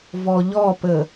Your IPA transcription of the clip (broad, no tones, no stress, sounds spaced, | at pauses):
v ɔ ʎ ɔ p ə